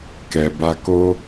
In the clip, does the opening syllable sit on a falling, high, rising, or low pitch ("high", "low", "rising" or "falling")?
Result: low